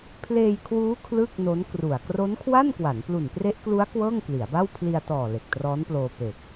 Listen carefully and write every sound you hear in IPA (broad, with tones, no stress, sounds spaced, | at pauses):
pʰ l eː˧ j kʰ w uː˦˥ kʰ l ɯ˥˩ k̚ n o˦˥ n k r u˨˩ a̯ k r o˦˥ n kʰ w a˥˩ n k w a˩˦ n p l u˨˩ n p r e˦˥ ʔ k l u˦˥ a̯ k w ɤː˥˩ ŋ k l i˩˦ a̯ b a˥˩ w pʰ l i˧ a̯ t ɔː˨˩ l e˨˩ k̚ t r ɔː˦˥ n p l oː˧ p e˨˩ k̚